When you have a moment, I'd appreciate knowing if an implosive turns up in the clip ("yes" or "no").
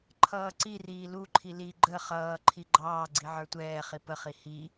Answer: no